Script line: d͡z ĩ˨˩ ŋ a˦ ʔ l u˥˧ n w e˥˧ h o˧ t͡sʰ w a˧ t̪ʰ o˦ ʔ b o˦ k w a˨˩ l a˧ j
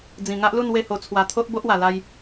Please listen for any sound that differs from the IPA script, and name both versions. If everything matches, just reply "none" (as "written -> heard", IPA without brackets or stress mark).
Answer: k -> ʔ